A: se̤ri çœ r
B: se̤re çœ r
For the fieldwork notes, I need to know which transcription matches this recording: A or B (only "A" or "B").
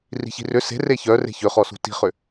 B